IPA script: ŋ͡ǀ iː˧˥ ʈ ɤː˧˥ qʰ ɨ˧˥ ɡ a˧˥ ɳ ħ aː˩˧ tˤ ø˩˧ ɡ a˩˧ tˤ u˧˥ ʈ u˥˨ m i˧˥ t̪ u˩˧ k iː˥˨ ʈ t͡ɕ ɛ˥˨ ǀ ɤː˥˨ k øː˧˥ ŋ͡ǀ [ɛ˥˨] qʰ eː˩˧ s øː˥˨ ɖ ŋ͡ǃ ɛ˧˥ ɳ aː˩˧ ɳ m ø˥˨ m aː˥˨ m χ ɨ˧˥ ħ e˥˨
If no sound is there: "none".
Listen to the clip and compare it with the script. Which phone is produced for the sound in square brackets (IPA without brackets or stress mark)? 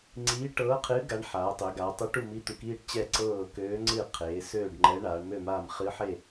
ɨ˥˨